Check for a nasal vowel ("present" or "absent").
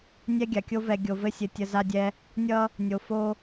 absent